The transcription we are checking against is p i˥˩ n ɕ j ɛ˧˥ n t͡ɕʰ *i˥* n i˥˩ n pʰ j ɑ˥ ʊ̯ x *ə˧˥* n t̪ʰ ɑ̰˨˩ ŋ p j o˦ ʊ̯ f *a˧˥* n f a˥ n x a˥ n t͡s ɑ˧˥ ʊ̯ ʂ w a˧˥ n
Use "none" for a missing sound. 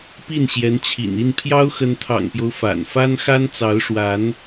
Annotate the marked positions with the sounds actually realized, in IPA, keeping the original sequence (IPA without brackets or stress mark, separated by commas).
ḭ˨˩, ə˧˥, a̰˨˩